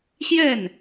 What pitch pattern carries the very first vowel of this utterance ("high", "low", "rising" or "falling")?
falling